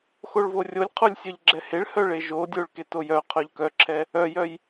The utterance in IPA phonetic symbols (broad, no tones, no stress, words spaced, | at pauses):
xoɭvorʲolʲqʰolʲ sʲœʎɡ͡ǁɛheɭhœ ɭeʒodʲoɭ ketojœqʰœʎ kœǁʰɛ | œjœj